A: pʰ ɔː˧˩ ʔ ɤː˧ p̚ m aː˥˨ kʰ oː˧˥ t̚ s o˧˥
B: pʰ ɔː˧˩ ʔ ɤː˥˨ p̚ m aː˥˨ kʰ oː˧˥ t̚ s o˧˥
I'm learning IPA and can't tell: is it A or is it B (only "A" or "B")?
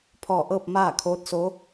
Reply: B